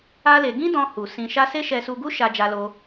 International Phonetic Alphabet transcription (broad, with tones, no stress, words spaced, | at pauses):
a˦le˧ ɡĩ˦dɔ̃˧ hu˨ sĩ˧ʃa˦ se˦ʃɛ˧su˧ɡu˦ ʃa˧ d͡ʒa˧lo˧